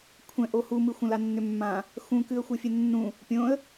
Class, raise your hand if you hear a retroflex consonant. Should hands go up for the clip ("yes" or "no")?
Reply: no